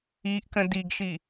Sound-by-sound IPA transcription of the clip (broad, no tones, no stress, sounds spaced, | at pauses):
i ʔ k ə̃ d i ɡ ʃ i